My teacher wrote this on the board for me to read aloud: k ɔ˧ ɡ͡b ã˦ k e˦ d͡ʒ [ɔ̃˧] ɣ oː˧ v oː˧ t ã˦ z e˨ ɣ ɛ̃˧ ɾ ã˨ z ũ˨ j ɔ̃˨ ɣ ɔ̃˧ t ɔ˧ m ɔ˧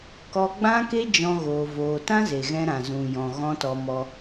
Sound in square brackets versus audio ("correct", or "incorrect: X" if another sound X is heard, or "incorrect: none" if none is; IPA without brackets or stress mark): incorrect: ɔ̃˦